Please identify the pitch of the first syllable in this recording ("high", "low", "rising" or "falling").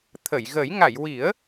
low